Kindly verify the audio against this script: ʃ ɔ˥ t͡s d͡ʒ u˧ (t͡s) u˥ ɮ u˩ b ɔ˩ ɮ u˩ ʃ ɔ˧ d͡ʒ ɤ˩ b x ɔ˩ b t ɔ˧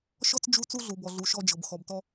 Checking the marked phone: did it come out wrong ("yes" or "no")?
no